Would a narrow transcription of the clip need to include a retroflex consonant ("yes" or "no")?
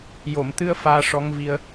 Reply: yes